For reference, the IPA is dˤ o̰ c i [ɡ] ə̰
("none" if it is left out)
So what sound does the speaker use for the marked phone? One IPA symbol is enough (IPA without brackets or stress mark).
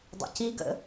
ɡ